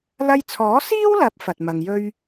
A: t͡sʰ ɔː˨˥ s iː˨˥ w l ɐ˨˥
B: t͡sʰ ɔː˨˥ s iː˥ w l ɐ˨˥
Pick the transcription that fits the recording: B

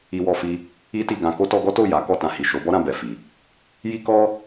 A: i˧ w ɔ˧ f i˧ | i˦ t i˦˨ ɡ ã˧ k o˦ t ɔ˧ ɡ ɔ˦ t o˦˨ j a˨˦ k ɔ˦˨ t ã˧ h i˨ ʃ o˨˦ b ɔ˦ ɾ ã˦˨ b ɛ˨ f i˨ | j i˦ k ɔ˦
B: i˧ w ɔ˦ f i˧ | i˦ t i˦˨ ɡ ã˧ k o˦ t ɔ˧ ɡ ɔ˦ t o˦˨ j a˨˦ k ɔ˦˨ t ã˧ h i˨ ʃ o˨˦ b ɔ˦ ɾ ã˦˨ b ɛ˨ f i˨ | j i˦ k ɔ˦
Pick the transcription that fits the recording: A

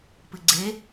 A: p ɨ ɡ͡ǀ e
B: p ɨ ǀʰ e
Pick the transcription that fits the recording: A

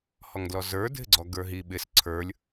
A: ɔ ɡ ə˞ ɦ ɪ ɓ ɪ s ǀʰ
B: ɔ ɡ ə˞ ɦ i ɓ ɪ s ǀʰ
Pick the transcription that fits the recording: B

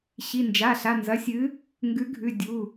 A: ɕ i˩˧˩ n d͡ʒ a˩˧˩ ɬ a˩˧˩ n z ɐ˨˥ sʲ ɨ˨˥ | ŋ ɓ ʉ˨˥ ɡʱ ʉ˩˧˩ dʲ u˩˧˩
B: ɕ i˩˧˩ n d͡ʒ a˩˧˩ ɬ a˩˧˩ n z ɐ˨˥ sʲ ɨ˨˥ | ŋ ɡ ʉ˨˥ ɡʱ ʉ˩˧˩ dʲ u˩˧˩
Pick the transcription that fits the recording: B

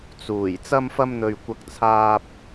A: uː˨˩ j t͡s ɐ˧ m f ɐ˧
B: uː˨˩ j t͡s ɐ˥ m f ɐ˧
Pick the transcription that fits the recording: A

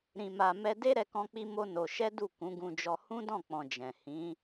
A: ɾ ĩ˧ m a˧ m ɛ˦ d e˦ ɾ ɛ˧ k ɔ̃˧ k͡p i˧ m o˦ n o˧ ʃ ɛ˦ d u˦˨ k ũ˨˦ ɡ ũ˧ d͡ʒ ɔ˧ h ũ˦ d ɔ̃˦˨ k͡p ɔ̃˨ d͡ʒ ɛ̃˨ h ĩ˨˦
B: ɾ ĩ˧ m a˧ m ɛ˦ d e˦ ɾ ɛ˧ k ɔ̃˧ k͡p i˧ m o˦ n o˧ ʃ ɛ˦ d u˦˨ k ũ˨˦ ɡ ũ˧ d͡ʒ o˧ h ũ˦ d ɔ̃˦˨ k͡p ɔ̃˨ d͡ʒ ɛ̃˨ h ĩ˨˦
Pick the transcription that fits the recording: A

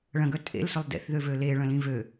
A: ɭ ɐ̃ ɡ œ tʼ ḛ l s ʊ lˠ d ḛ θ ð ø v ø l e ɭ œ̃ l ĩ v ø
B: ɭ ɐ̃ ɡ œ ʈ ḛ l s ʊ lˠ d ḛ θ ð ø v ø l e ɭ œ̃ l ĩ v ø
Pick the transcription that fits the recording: A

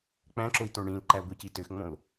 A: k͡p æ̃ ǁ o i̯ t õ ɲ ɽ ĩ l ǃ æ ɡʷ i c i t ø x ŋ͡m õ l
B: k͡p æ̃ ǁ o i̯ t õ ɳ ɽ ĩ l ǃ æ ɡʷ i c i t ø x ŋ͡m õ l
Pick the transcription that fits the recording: B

